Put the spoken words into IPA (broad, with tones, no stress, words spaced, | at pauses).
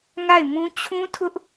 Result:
ŋa˦˨ɪ̯mũ˦ t͡ɕʰũ˦tʰʊ˦ʔ